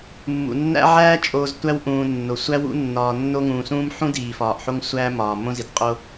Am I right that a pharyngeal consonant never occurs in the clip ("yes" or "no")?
no